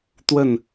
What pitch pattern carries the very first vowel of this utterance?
falling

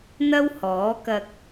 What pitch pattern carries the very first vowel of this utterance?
high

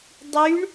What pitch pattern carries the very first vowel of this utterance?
rising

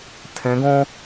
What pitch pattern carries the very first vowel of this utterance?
rising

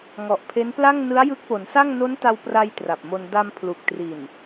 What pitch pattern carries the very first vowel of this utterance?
low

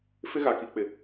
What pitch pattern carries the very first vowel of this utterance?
high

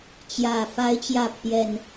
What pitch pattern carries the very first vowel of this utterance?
low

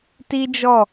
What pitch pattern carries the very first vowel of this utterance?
high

